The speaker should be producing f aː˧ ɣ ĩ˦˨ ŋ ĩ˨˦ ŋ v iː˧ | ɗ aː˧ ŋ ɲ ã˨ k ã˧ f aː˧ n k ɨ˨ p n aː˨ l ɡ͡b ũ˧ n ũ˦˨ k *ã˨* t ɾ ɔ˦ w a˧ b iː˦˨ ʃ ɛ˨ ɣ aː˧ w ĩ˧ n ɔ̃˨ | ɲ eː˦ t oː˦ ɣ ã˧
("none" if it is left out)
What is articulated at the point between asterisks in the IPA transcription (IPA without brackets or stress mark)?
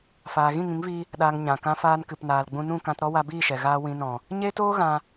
ã˧